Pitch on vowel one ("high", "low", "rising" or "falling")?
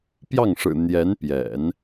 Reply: falling